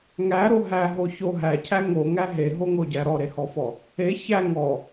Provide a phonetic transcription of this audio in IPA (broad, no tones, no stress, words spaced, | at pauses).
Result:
ŋæɾo ɦæɦo ço ɦæcʰæ ŋoŋæ ɦeɦoŋoɟæ ɾɔɾehɔfɔ | e çæ ŋɔ